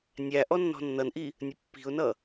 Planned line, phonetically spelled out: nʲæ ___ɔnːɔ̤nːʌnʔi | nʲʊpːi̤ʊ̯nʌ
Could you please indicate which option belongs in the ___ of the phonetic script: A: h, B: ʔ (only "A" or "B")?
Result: B